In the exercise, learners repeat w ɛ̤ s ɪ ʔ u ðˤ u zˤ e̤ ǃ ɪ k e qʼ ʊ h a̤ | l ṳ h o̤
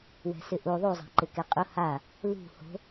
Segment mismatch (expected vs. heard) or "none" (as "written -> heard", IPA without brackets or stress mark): a̤ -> a